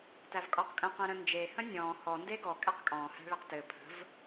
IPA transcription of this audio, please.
tævkʼɔqkʼə̃ qẽɾə̃nd͡ʒe hə̃nʲɔ̃ː hɔ ndeɡɔ kʼæqkʼɔ̃ː hæ̤ɭeqtɘ pʰə̤v

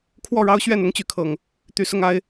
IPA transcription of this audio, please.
kʰwɔ˥˨ɻɑ˦ʊ̯ɕɥɛ˥˨n ʊ˦ŋt͡ɕy˨˦kʰɤ˨˩ŋ | t̪y˨˦sʊ˥˨ŋa˦ɪ̯

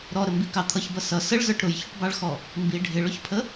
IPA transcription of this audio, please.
ɾɔɾəmbikɑ t̪ʰʌçbʌ sʌ səɭzə˞ʈ ɾʊjçʊʈbɑɭxɔ | mbi ɖʱɪɭʊçpʰə

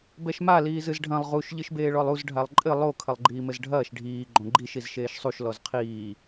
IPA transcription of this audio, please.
bɛʃma liːzɨzɖʱɐ̃lˠ ʁuʃ ʎɨʃbeːɭɔlˠuz ɖʱalˠǃʼɘ lˠo kʰɐlˠɡ͡ǃiːmɘzɖʱɐːʃ ɖʱiː ɡ͡ǃõɡ͡ǃiʃ izʃeːʃsˤuʃ lɔzqʰiː

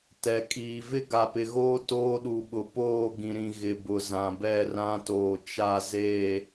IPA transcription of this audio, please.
tɛ˨kʼiː˨ vɪ˦ɡa˨pɪ˨ɣoː˦ toː˦ɗu˨ɓʊ˨ poː˦˨ ɡĩ˨ɾĩ˨ ɣɪ˨bʊ˨ zã˨bɛ˦˨rã˦toː˨ t͡ʃa˦˨ze˦˨

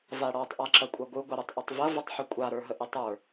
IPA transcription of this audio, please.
vaɽɔtˤ ʔaǁɐkʷʼɐɡʷɯ ɡʷɐɾɯtˤʔɐtˤvɐ vətˤħəkʷʼa ɾə˞ɦəʔɪtˤə˞

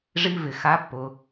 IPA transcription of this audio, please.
ʐi˧vɪ˨ xa˦pːʊ˧

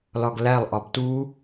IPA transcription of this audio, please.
lɒɡlælˠ ʔɒbtu

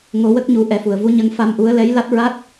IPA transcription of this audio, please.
ŋo˨˩˦wə˦˥k̚ɲu˨˩˦ ʔɛ˨˩˦fu˨˩˨ə̯ vu˧˥ ɲə˧ŋ fa˧mʔu˧˥ə̯ lɛ˧˥jla˦˥t̚ɹa˦˥t̚

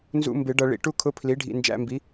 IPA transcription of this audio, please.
nzṵ˧˥˧ mbɪ˨˩˦ ɖʌ˨ ɭḭ˨ ʈu˥kʰʊ˧˥˧ pʰli˩˥ɖʱḭ˨ nd͡ʒæ̰˧˥˧mbi˩˥

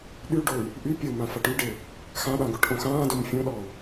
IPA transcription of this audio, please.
ɗyɖoy̯ | ʔy pʲəu̯mã faʈyɖe | xãɗã ɡoʈʔõxãːdom fʲõɗɔu̯

